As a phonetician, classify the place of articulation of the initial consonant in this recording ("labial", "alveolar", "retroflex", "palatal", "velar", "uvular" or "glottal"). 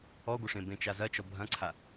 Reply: velar